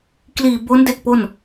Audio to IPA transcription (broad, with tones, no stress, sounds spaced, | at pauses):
k l iː˨˩ b o˦˥ n d e˥˩ k̚ p o˥˩ n